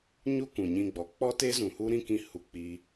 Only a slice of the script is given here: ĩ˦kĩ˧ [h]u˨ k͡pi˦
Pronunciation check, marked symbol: correct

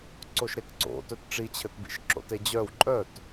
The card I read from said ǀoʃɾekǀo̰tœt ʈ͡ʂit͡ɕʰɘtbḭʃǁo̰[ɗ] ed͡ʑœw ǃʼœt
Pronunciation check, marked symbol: incorrect: t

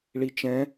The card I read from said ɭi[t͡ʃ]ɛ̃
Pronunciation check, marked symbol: correct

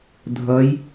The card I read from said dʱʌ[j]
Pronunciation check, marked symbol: correct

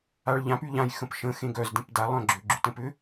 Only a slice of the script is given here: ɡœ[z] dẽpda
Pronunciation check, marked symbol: correct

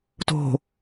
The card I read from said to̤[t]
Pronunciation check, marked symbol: incorrect: none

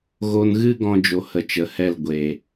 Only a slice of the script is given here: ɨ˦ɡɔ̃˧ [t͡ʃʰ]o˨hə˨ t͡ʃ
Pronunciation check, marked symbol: incorrect: d͡ʒ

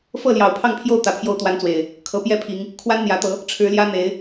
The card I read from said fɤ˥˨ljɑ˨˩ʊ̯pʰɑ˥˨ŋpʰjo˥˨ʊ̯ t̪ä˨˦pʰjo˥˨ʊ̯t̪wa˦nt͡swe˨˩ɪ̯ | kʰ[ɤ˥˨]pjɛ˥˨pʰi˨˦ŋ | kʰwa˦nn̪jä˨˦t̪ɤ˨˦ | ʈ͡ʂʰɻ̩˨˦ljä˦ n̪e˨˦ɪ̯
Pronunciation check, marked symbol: incorrect: ɤ˨˦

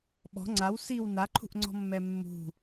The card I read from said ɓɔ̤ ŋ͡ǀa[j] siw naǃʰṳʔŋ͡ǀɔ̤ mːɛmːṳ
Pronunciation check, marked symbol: incorrect: w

